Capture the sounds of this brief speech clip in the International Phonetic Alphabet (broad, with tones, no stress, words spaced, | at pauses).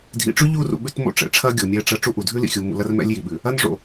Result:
dʱḭ˨ʈ͡ʂʉ˦ʎu˦˨rṵ˨ ɓʉ˦tmo̰˦ ʈ͡ʂɛ̰˨ʈ͡ʂʰɐ˦ɡʲo˨ mʲɛ˦ʈ͡ʂɐ˦ ʈ͡ʂu˦ʔu˨ dʱʉ˦lḭ˨xʲu˨ mṵ˨lɐ˦r mɛ̰˦lʲji˨ɓʉ˨ | ɐ˦nʐo̰˨